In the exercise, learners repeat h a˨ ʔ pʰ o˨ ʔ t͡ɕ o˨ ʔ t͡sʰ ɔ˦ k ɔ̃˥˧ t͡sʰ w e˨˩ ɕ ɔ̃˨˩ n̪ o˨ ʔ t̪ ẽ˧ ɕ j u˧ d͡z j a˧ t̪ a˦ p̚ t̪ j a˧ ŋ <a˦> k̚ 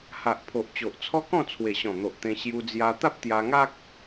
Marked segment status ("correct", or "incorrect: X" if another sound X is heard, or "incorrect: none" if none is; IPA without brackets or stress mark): correct